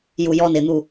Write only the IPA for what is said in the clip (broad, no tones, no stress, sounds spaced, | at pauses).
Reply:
j u j ɔ n ɪ n̪ u